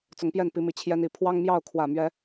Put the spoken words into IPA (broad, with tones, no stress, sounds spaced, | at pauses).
t͡s ʊ˨˦ ŋ p j ɛ˥˨ n p i˨˦ m i˨˩ t͡ɕʰ j ɛ˦ n i˨˦ pʰ w ɑ˦ ŋ m j ɑ˥˨ ʊ̯ kʰ w ä˨˩ m ɥ ɛ˨˦